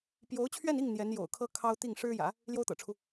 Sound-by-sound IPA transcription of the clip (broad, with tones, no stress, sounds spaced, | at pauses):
p j o˧˥ ʊ̯ t͡ɕʰ ɥ ɛ˥˧ n i˥˩ ŋ n̪ j ɛ˧˥ n j o̰˨˩ ʊ̯ kʰ ɤ˥ kʰ ɑ˥ ʊ̯ t̪ i˥˩ ŋ ʂ ɻ̩˥ j ä̰˨˩˦ | l j o˥ ʊ̯ t̪ ɤ̰˨˩ ʈ͡ʂʰ u˦